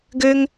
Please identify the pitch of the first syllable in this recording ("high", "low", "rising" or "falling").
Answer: high